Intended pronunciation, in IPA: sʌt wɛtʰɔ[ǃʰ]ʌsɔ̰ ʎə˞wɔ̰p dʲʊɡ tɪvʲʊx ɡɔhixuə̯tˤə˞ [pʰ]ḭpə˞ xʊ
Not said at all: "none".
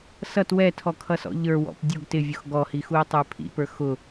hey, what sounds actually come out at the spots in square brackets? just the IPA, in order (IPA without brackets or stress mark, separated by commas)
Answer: kʰ, pʰ